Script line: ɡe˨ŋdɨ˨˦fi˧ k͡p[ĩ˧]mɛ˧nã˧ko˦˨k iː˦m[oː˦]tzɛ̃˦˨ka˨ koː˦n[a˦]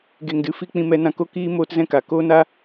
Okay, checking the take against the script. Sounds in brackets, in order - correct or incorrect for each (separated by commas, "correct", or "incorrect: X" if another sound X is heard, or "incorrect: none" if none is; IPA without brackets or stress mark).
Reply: correct, incorrect: oː˧, correct